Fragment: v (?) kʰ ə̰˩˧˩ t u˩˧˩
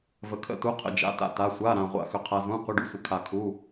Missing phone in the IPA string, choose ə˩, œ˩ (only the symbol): ə˩